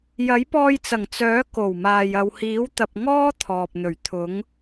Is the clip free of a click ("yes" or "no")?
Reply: yes